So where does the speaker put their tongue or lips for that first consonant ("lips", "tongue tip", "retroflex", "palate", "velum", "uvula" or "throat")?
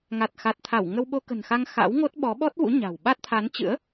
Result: velum